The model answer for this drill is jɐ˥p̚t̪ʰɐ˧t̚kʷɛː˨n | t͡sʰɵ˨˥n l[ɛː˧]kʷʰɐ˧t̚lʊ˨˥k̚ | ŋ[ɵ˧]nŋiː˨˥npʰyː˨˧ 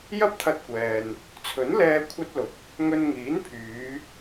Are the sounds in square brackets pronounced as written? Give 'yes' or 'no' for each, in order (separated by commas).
yes, yes